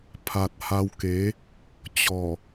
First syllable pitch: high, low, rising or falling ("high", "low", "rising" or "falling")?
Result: low